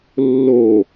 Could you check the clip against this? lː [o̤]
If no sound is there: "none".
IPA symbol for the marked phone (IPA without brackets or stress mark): o